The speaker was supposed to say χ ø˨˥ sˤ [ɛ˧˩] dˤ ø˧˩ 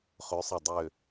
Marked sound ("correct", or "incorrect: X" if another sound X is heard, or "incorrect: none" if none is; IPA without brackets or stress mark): correct